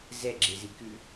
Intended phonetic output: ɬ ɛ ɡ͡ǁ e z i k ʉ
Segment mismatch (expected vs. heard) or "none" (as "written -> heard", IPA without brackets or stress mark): ɬ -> z